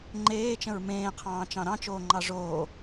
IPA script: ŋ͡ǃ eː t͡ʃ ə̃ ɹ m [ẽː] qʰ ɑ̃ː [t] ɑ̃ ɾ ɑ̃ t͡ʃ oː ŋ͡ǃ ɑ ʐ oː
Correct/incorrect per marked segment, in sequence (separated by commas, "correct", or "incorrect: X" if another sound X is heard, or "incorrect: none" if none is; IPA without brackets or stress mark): correct, incorrect: t͡ʃ